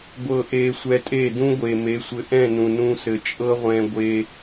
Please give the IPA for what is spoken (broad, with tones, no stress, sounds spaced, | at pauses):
ɡʷ ɤ˨ ʔ e˨ sʷ ɛ˧ tʼ e˦˨ d ũ˦ ɡʷ e˨ m e˨˦ sʷ ɘ˧ ʔ ɛ̃˦˨ n ũ˨ n ũ˧ s ɘ˨ t͡ʃʼ ɤ˦ ʁʷ ɛ̃˧ ɡʷ e˧